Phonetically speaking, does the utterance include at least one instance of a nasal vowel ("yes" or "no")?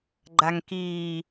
no